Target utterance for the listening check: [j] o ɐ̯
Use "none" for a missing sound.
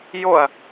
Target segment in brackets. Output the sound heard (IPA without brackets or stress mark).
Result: j